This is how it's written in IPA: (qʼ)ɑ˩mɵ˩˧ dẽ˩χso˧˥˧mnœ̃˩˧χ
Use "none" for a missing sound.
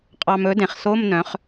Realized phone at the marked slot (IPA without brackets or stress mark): qʼ